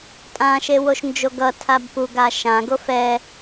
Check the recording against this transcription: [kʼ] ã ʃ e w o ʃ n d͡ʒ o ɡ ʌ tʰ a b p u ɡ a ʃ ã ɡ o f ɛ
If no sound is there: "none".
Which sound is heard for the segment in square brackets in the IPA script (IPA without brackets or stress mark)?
tʼ